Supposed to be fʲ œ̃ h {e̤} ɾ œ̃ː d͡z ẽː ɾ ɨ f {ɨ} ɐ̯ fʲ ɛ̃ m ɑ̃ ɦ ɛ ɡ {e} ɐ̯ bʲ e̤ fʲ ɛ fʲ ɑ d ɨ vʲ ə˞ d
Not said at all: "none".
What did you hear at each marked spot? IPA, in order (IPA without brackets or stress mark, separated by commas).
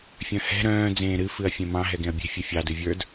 ɛ̤, ɨ, ẽ